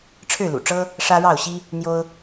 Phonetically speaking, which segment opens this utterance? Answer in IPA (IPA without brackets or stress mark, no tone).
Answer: ʈ͡ʂʰ